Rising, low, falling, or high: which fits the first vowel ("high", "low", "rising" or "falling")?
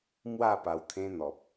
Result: falling